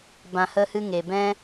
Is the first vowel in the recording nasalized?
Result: yes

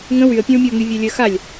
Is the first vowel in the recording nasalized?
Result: yes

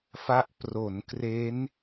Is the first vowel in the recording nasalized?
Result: no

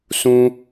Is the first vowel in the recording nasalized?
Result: yes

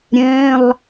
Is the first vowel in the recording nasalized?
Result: yes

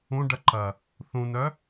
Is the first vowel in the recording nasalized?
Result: yes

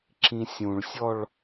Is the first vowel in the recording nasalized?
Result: yes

